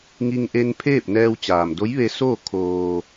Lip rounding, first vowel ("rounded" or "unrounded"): unrounded